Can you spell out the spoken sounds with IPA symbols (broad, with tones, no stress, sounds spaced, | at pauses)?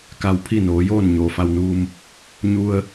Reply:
k a˧ w pʰ i˥˨ n oː˩˧ j oː˥˨ n ɲ oː˩ f a˧ w n uː˧ m | ɲ u˧ ə̯